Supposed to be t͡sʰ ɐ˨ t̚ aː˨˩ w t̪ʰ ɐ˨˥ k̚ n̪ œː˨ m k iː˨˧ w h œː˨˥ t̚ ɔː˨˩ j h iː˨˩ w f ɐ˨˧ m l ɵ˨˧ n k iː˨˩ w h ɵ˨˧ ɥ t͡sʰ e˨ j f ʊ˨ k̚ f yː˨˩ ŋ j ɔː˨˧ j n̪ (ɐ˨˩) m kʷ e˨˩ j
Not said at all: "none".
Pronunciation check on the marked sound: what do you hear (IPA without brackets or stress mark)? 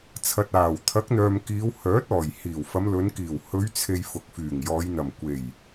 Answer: ɐ˨˩